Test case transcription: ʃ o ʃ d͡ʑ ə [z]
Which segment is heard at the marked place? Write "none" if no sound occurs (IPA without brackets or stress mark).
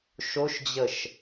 ʃ